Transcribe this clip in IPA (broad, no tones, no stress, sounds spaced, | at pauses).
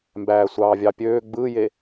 m b æː sʷ ɑː vʲ ɑ pʲ øː ɡ͡b ɯ j e